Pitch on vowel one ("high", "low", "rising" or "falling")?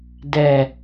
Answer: low